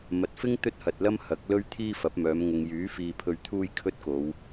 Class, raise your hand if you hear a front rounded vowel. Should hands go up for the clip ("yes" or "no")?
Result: yes